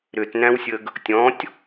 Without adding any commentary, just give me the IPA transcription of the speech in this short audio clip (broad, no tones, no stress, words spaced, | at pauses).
ɾʏtnæ̃wsʲəɡ | tʲɔ̃tʲ